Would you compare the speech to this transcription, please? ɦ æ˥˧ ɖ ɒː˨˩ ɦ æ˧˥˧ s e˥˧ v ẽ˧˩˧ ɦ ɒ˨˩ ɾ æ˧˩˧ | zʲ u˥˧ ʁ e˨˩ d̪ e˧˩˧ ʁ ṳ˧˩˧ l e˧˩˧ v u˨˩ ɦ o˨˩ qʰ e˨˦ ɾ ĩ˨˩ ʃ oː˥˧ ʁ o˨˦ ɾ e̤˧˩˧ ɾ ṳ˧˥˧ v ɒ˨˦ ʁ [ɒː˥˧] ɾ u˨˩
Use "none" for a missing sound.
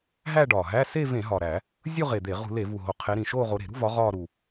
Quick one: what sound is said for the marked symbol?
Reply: ɒː˥˧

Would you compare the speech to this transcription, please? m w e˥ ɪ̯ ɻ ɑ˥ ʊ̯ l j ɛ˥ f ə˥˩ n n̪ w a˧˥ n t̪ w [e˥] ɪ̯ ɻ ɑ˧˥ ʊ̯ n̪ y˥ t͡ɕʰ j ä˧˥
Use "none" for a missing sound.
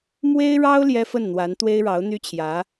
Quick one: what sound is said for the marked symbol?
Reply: e˥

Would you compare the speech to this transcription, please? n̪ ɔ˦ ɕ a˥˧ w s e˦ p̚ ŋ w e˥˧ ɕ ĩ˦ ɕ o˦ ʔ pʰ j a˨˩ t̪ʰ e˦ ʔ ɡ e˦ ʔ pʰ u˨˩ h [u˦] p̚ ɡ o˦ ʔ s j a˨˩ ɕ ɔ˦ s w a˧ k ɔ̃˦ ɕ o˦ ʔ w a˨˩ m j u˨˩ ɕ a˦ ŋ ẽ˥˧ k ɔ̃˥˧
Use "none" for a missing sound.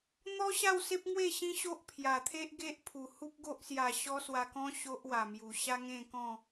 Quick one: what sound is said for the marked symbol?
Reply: u˦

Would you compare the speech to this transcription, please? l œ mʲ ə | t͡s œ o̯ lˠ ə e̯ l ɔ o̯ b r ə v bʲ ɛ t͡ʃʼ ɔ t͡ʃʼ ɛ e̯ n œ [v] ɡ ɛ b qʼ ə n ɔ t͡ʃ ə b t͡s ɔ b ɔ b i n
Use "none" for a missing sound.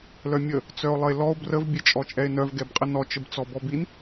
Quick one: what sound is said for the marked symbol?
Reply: v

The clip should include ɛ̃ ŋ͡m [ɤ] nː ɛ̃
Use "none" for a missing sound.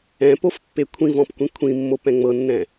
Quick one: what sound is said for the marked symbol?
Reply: ɤ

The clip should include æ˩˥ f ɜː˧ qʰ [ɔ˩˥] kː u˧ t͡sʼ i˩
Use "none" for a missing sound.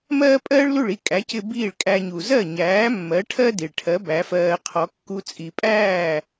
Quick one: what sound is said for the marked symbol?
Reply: ɔ˩˥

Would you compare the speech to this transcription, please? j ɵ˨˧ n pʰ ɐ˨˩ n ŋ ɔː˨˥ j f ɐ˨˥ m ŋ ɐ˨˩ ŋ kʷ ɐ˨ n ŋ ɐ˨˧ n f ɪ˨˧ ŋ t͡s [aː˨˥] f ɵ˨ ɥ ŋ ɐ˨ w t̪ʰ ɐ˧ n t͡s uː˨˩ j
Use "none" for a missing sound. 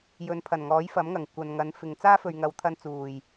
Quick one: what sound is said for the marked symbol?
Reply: aː˥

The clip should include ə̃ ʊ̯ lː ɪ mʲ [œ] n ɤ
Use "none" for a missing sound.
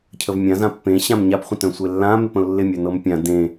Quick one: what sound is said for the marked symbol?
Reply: œ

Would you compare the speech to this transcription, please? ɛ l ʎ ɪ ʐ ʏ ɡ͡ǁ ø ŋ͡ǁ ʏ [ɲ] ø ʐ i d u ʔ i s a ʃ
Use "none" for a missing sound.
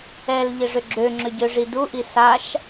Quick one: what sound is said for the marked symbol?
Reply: ɟ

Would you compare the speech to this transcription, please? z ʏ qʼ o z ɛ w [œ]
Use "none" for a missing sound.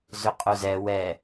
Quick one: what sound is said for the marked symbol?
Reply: ɛ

